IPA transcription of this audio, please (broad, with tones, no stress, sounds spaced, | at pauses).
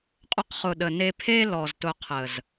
qʼ ʊ˧ q χ ʊ˨ ɗ ə˨ n e˧ pʰ e˦ l ɔ˨ z t ʊ˧ qʰ ə˨ z